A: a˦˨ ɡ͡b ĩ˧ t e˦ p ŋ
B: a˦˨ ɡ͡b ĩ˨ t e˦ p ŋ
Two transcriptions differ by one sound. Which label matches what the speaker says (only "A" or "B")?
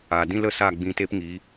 A